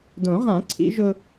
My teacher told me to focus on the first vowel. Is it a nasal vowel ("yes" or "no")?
yes